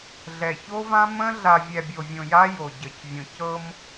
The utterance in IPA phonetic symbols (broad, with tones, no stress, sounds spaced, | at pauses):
ɮ ɛ˨ ç o˦ v ã˦ m ə̃˦ ɮ a˨ vʲ ɛ˨ bʲ o˨ vʲ õ˨ j a˦ j o˨ ɟ ə˨ c vʲ õ˨ c ɤ˦ m